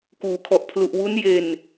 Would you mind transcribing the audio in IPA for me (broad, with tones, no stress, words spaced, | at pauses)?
kuː˩˦kʰɔ˨˩ʔ pʰlu˨˩ʔwu˦˥n je˧n